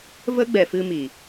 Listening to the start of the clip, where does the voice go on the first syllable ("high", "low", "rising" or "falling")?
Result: high